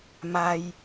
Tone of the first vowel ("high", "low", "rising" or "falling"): low